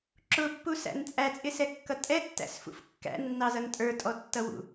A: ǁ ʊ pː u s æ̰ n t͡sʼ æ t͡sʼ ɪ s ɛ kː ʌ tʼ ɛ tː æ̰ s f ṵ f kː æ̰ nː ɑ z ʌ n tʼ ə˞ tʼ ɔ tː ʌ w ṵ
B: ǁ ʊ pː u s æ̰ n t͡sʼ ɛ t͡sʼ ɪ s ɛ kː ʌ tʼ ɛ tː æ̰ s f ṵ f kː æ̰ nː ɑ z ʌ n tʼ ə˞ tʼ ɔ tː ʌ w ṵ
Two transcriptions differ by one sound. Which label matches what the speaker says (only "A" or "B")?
A